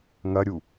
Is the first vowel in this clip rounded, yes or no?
no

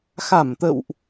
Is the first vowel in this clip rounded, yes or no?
no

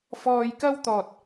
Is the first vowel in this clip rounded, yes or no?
yes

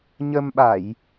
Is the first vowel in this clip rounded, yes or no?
no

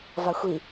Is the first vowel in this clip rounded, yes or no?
no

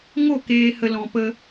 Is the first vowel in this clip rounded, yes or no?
yes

